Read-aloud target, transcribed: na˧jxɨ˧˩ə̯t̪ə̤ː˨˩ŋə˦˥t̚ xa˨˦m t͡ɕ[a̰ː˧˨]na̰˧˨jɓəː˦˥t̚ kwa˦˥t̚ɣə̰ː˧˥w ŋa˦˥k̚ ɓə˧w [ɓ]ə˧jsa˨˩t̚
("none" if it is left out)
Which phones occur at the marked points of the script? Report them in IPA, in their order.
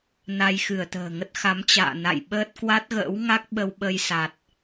a̰ː˧˨, ɓ

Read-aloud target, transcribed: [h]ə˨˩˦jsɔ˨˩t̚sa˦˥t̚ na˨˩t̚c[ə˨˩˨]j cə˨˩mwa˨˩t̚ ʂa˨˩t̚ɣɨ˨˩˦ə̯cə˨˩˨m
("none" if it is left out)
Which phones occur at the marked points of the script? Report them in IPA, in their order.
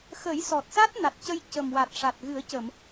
x, ə˧

